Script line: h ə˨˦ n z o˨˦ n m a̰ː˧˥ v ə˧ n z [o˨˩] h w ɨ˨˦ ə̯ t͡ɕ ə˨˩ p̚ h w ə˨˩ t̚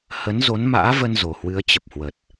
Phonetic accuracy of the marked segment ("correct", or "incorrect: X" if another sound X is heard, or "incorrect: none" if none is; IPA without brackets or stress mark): correct